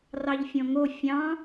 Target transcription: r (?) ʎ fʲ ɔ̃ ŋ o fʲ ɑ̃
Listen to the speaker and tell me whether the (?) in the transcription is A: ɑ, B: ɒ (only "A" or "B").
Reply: A